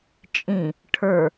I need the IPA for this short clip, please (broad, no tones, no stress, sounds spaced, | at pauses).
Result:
t͡ʃʼ ĩ | ʈʰ ə˞